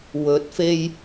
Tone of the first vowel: rising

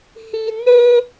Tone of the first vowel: high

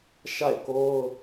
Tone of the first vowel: falling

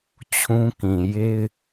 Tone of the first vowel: high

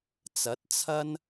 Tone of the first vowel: rising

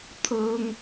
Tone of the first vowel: high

